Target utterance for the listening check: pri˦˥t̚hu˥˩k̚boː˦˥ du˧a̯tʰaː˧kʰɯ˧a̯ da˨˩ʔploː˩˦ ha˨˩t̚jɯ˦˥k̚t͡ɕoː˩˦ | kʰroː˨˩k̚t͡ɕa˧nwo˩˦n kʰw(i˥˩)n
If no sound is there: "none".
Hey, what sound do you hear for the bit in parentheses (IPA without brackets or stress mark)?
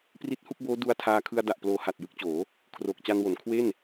e˥˩